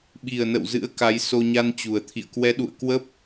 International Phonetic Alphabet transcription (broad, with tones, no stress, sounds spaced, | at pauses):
ɓ i˨˩ ə̯ n ə̰˧˨ w z ɨ̰˧˥ ə̯ k a˨˦ j s o˧ ɲ a˧ n t͡ɕ u˨˩ ə̯ t̪ʰ ḭ˧˨ ə̯ k w ɛ˨˦ ɗ ṵ˧˨ ə̯ k w ə˦˥ p̚